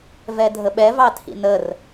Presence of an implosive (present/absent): present